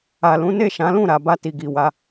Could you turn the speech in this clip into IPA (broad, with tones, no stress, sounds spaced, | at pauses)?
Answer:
a˨ l ũ˨˦ n e˦˨ ʃ ã˨˦ l ũ˦˨ ɾ a˨ b a˧ t i˨ ɡ i˨ w a˨˦